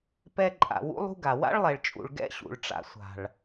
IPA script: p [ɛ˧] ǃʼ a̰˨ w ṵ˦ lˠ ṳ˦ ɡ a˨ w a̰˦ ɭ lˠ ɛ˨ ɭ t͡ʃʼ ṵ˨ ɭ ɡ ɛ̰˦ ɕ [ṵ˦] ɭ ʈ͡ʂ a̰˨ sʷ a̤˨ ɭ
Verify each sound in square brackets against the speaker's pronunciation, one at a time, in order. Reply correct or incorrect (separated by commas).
correct, incorrect